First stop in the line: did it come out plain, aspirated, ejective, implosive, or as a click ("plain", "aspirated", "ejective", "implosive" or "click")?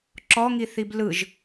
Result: click